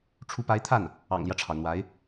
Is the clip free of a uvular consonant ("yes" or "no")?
yes